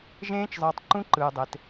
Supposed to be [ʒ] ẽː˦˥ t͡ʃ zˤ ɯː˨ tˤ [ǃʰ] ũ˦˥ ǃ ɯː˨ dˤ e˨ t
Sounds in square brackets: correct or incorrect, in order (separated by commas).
correct, incorrect